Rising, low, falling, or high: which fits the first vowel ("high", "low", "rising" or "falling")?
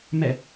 falling